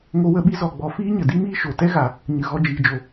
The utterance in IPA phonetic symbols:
ŋ o˦ w ə˦ ɓ i˦ z ɔ˨ ɡ͡b ɔ˨ f iː˦ ɲ ə˨ d i˦ m iː˦ ʃ o˨ t ɛ˦ ɣ a˨ | ɲ ɨ˨ ɣ ɔ˧ d͡ʒ iː˨ d͡ʒ o˨

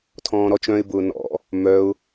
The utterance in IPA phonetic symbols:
tʰ ɔ̃ː ɾ ɔ t͡ʃ œ̃ ɪ̯ b ʊː n ɔ̰ | m œ ʊ̯

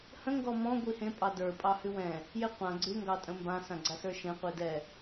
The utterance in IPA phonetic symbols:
h ə̃ ŋ ɡ ɔ m ɔ̃ ɡʷ i h ẽ pʼ ɑ d ə˞ pʼ ɑ h ʉ w ɛ̃ | j e qʷ ã ɡ͡ǀ ʉ ŋ ɡ ɑ tʼ ə̃ m b ã s ã ɡ͡ǀ a s ə˞ ʃ ẽ qʷ i d ɛ

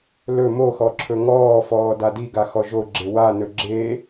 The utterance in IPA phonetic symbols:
l ɵ m o x ɔ ǁʰ ɵ ŋ ɔː f ɔː d a d i ɡ a x ɔ ʒ o ɡ͡ǁ e w a n ɵ ɡ͡ǁ e

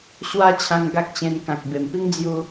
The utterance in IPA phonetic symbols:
ɕ w a˦ t͡ɕʰ ã˧ ŋ ɡ a˦ k̚ t͡ɕ ẽ˧ n k ã˨ k̚ b e˨˩ m p i˦ ŋ d͡z j u˧

